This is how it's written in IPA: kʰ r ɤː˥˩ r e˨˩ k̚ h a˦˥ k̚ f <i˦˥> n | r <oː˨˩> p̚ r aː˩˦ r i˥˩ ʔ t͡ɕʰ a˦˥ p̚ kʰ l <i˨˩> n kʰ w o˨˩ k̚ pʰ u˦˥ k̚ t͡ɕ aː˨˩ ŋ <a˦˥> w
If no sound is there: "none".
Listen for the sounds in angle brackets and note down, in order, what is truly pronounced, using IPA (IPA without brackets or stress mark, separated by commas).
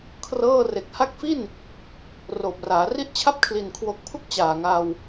i˥˩, oː˨˩, i˨˩, a˧